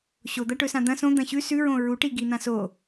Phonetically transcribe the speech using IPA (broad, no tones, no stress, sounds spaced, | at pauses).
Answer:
ɕ o d̪ ɐ ʈ ɵ s ã d̪ ɐ̃ s õ d̪ ɐ̃ ɕ ʉ s ʉ ɹ õ ɹ u ʈ i ɡ i n̪ ã s o